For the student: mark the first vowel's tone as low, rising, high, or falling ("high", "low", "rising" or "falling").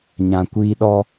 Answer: low